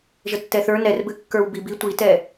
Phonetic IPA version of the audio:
ʒ ə tː ɛ θ ə˞ n ɛ r b ɘ kː ə˞ w b i b i tʷ i t ɛ

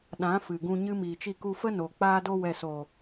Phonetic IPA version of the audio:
ɗ ã˨˦ f ɨ˨ ɡ ũ˧ ɲ ɨ˦ m iː˨ t͡ʃ i˧ k u˧ f ə˦ n o˨ k͡p aː˧ d o˧ w ɛ˨ s oː˨

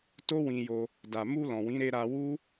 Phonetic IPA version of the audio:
t o˦ w ĩ˧ j o˧ | d a˨ m u˧ l ɔ̃˨ w ĩ˨˦ ɾ e˧ ɾ a˧ w u˦

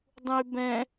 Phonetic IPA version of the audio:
dˤ ũ y̯ b ɛ̃

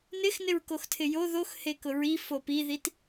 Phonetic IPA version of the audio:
n ɪ x n ɪ ɹ k o x tʰ ɪ j o ð o x h e k ʊ ɹ i f o p i ð i t

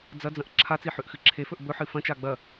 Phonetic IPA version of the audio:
d͡z ɐ d͡z ɐ̃ ʔ ǁʰ a t͡s i ħ ʉ ʔ x ɨ ǁʰ e f ɵ ʔ b ɵ ħ ɨ f ɐ̃ t͡ʃ a ɡ͡b ɐ

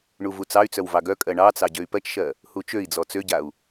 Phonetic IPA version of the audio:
ɳ u v u t͡s ɑ y̯ t͡s œ w v ɑ ɡ œ kʼ ɜ ɳ ɑ t͡s ɑ ɟ ø y̯ p ɜ t͡ʃ ʃ ɜ | h u t͡ʃ ø i̯ d͡z ɔ t͡s ø ɟ a u̯

